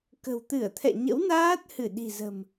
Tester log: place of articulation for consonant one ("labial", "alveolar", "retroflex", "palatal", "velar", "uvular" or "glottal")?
velar